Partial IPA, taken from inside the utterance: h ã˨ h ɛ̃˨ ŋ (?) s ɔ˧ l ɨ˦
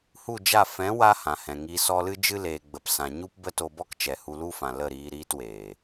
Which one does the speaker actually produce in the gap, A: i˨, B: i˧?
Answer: A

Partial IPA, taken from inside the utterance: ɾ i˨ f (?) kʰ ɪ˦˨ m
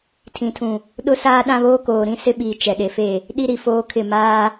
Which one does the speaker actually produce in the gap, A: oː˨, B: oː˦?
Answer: B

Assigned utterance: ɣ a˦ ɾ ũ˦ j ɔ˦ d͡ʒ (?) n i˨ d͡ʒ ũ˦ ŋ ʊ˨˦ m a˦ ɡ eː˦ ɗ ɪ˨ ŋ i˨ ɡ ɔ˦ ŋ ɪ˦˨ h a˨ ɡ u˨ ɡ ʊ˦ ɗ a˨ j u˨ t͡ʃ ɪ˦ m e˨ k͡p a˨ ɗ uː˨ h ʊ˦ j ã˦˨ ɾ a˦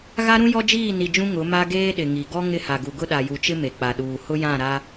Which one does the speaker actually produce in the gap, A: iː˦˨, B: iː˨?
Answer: A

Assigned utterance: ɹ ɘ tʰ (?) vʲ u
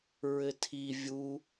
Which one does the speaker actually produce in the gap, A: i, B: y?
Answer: A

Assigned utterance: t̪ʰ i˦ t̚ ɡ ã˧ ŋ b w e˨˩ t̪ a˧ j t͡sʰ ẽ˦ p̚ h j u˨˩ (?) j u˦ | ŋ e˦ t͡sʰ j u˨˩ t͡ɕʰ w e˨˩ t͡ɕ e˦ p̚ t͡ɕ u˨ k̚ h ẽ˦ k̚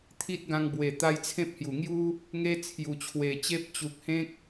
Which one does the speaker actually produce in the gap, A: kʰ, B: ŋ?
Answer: B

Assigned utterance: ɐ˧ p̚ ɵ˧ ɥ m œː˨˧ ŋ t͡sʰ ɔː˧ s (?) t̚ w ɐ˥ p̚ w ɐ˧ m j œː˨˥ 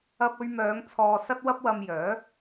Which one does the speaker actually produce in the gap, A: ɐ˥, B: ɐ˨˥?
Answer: A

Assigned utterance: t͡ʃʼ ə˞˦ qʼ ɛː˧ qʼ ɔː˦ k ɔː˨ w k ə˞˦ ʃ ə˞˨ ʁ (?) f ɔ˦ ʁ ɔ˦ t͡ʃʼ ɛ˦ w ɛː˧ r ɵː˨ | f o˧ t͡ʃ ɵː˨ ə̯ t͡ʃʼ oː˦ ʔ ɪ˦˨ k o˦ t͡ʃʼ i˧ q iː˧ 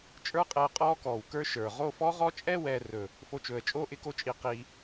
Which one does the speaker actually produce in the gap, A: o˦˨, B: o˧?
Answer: A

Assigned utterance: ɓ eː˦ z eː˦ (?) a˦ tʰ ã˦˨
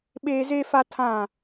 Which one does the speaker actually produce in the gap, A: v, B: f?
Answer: B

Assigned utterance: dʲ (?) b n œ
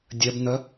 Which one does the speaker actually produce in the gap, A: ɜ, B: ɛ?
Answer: A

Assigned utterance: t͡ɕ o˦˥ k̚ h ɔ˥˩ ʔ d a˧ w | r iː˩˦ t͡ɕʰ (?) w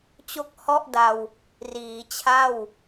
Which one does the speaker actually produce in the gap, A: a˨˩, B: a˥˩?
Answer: B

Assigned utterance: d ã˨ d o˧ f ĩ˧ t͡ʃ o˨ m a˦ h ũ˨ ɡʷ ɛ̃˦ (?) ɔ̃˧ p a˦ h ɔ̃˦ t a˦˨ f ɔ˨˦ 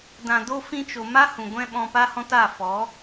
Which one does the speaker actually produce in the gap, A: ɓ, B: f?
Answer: A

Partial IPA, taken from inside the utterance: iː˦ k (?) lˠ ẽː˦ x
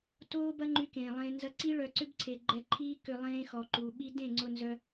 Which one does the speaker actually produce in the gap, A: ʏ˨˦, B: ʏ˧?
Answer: B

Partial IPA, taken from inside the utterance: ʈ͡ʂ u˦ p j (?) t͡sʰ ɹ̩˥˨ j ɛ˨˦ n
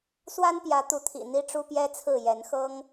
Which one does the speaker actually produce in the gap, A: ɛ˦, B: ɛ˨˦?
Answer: A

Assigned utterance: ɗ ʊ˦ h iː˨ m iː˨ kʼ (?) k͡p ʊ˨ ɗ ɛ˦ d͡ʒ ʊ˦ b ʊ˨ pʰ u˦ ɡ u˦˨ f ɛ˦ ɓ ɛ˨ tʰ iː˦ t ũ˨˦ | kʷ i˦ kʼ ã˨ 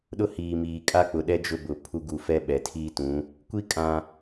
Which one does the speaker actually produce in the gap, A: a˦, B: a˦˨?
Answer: A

